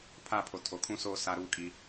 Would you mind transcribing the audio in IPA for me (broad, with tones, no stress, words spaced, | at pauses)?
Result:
pʰa˦˨pʰo˨ tʰo˨kʰũ˦soː˦ sa˦ɾuː˦kʼi˦